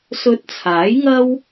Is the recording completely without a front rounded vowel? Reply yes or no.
yes